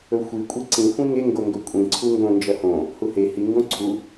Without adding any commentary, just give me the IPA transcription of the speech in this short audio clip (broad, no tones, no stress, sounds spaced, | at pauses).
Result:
ɵ xʷ i kʷʼ i ǀ ĩ xʷ ĩ ŋ e ŋ ɡ o ŋ ɡ ɵ kʷʼ ĩ ǀʰ u ŋ ɡ õ n d͡ʒ ɐ h õ | h u h e h i ŋ ɡ õ ǀʰ u